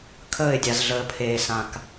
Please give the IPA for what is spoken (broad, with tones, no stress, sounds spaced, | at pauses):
kʰ əː˦˨ ɪ̯ dʲ a˨ z ɮ əː˨ pʰ eː˨ s ã˨ k